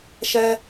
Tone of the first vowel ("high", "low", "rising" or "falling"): high